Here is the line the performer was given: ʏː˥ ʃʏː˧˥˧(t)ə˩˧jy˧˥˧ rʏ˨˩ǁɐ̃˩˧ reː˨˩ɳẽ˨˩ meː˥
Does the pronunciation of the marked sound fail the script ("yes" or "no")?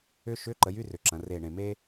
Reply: yes